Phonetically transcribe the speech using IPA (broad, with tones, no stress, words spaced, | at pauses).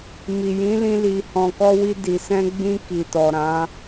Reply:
mi˨jĩ˨˦lĩ˧ li˨hɔ̃˨kɔ˧wi˧ di˨sɛ̃˧ɡ͡bĩ˧ ki˨tɔ˨ɾã˨˦